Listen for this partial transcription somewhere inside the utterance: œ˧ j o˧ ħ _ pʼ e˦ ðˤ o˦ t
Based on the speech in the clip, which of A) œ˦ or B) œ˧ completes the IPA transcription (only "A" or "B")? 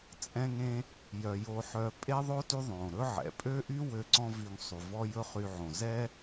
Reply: B